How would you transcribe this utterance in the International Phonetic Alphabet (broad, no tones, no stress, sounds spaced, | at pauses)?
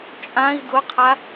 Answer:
t͡ʃʼ ã i̯ d ʊ qʰ a